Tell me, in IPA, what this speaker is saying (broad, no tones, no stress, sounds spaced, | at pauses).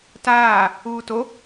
t aː | uː t o